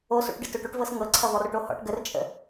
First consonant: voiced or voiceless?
voiceless